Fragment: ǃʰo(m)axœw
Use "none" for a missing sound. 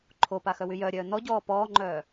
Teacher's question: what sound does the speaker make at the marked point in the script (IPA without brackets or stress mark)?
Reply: p